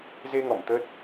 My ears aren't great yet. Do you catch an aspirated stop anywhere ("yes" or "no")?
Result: no